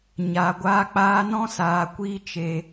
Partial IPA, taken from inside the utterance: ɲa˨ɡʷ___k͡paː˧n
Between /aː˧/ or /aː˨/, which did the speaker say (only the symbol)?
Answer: aː˧